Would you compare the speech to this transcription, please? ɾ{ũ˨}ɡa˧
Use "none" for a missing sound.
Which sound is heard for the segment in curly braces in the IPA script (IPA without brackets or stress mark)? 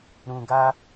ũ˨